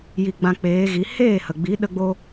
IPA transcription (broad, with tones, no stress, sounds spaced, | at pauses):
j i˧ ɡ͡b ã˧ k͡p eː˨˦ ɣ i˨˦ h eː˦˨ h ə˨ ɡ͡b i˨˦ ɗ ə˧ ɡ͡b o˧